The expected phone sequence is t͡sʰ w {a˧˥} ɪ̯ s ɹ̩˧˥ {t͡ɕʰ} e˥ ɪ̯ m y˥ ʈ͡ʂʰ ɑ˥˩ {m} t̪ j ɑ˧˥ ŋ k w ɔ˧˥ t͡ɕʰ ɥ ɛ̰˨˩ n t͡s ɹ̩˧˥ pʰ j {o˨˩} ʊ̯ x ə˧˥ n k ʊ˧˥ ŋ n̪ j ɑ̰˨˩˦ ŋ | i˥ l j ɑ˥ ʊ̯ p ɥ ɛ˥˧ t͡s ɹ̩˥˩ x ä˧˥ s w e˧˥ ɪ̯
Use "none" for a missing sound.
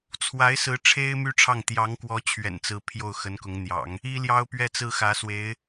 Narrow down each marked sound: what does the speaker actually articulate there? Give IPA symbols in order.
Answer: a˧˥, ʈ͡ʂʰ, ŋ, o˥˩

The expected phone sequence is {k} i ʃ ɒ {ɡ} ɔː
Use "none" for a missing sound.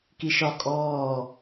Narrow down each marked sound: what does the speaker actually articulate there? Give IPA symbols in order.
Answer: k, kʼ

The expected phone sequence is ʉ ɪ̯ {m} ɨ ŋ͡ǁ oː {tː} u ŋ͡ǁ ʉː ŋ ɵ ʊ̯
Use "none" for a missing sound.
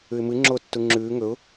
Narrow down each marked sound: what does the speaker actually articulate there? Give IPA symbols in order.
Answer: m, tː

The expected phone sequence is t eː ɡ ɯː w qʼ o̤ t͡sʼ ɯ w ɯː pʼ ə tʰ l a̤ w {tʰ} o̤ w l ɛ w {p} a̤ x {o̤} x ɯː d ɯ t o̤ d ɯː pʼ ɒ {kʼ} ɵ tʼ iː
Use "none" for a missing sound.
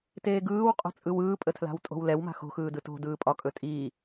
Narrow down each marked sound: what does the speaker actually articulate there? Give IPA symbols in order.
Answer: tʼ, m, o̤, kʼ

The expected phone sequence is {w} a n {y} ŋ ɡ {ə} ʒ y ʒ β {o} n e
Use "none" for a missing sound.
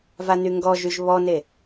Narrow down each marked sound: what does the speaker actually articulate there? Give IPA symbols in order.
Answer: v, y, ɔ, ɔ

